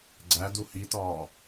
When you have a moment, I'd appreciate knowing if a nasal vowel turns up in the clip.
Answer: no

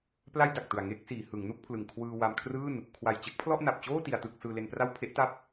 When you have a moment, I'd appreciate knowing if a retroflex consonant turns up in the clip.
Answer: no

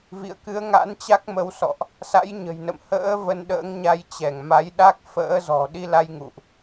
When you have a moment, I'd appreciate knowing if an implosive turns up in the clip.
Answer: yes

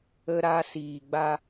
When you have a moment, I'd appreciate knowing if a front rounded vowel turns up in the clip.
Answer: no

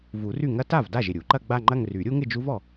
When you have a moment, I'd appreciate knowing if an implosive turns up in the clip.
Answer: no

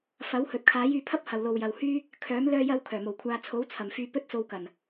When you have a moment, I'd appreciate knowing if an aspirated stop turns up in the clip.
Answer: yes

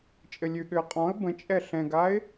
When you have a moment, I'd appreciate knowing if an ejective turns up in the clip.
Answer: yes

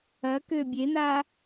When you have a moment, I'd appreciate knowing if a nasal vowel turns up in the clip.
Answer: no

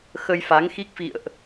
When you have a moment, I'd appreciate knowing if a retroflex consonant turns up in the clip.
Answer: no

